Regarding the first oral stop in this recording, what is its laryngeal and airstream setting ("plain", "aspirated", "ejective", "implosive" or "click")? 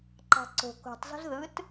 click